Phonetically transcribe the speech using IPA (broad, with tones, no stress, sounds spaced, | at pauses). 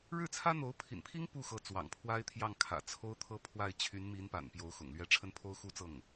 ɻ ɻ̩˥˩ t͡sʰ ä˥ n̪ o˧˥ ʊ̯ pʰ ḭ˨˩ n pʰ i˥ ŋ p u˥˩ x ɤ˧˥ t͡s w ɑ̰˨˩ ŋ pʰ w a˥ ɪ̯ t̪ʰ j ɑ˥˩ ŋ kʰ ä̰˨˩ t͡sʰ o˥ ʊ̯ t̪ʰ ɤ˥ pʰ w a˥˩ ɪ̯ t͡ɕʰ y˧˥ n m i˧˥ n p a̰˨˩ n p j o˧˥ ʊ̯ x ʊ̰˨˩ ŋ l ɥ ɛ˧˥ ʈ͡ʂʰ ə˥˩ n pʰ o˥ ʊ̯ x u˥ t͡s ɤ˥˩ ŋ